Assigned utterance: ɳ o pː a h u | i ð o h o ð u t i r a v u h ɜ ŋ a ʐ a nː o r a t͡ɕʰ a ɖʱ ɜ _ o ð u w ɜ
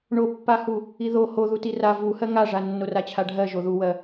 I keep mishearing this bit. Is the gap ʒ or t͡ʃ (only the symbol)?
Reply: ʒ